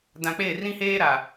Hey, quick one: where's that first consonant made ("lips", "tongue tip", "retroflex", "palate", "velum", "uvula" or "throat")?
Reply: tongue tip